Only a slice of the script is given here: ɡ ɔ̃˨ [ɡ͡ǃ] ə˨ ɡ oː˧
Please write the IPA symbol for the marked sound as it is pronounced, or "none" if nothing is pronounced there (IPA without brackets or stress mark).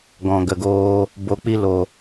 ɡ